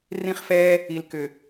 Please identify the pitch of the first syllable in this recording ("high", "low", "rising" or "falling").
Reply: high